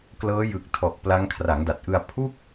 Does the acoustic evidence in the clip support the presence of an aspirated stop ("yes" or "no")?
yes